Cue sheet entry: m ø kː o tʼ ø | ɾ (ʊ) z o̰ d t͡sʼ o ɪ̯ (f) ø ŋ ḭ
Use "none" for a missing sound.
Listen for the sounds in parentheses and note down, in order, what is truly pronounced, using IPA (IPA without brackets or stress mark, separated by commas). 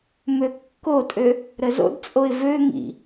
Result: ə, v